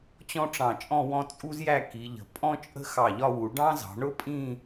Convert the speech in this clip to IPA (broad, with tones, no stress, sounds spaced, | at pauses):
t͡ɕ ɔ̃˥ ʈ͡ʂ ɑ̃˧˩ t͡ʃʼ ɔ̃˥˧ w ɔ̃˥˧ t͡sʼ u˥ z j æ˥˧ k i˩˧ ʎ ə̤˩˧ pʼ ɔ̃˥ t͡ʃʼ ə̤˥ x ɑ˧˩ ʎ ɒ˥˧ w u˩˧ ɖ ɑ̃˥ z ɑ̤˩˧ ɳ ʊ˥ pʼ ĩ˥˧